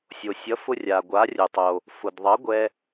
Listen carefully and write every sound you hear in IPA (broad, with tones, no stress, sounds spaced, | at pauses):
sʲ o˩ sʲ ʌ˩˥ f ʊ˧ rʲ a˩ ɡʷ a˩˥ rʲ ʊ˩ tˤ o˩ | f ʊ˩ d ðˤ ʌ˩˥ ɡʷ ɛ˧